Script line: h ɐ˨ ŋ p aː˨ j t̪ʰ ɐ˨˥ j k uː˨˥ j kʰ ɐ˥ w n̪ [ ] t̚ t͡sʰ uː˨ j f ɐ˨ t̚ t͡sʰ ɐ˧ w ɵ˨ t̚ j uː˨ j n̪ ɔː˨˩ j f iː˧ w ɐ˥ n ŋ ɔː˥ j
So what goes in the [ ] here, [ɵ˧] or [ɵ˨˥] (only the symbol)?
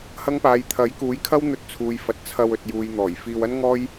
ɵ˧